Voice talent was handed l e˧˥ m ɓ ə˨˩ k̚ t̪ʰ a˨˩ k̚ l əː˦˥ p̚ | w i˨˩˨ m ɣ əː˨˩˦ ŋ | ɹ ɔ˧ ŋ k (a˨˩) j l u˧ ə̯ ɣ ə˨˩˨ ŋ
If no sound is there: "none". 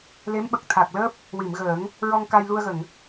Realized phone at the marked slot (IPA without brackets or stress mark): a˧